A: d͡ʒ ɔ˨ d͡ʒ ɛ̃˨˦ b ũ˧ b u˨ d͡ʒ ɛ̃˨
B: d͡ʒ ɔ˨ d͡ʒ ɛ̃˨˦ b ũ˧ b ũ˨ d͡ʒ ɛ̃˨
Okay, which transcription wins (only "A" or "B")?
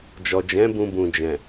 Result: B